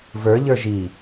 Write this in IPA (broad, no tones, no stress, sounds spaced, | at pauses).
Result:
v ə˞ ʎ ə˞ ʒ i